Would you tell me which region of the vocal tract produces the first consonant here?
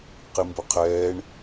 uvula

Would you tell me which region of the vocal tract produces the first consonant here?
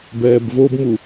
lips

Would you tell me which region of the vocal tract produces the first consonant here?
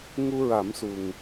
velum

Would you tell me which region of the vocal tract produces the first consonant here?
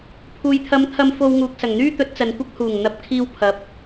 lips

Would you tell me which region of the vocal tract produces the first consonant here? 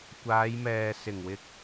velum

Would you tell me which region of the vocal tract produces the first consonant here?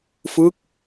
lips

